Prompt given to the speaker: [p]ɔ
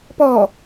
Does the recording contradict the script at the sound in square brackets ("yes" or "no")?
no